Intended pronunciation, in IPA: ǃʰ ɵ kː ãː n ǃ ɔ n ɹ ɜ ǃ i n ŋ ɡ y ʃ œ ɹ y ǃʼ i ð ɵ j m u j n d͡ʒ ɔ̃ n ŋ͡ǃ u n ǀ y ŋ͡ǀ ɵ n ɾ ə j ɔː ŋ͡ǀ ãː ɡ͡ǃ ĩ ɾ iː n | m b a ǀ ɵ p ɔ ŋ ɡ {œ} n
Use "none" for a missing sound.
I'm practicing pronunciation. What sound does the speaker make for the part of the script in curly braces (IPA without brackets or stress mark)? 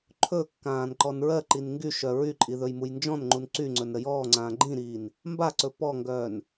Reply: œː